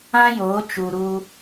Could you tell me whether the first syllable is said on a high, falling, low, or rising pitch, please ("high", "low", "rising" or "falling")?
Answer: high